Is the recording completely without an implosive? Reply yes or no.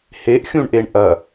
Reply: yes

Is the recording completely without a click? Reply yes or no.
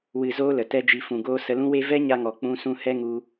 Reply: yes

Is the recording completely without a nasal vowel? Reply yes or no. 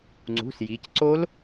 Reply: yes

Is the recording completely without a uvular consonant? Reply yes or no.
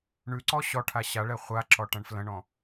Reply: no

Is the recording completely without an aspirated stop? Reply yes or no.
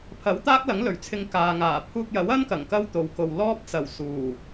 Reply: no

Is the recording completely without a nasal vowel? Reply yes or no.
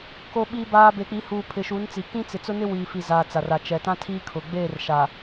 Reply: no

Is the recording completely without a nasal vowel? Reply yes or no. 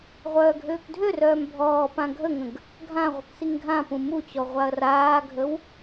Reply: no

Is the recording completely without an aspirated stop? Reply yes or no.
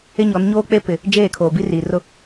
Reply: no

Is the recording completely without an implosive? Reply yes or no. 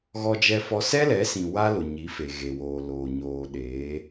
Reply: no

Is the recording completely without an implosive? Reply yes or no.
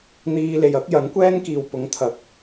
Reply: yes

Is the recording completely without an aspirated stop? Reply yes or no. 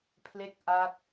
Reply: no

